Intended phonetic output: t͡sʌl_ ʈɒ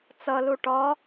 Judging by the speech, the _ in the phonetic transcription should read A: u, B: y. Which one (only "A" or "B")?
A